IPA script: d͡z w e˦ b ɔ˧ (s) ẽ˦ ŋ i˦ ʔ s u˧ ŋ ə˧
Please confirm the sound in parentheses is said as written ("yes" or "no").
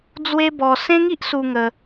yes